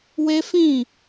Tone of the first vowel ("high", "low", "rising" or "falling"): high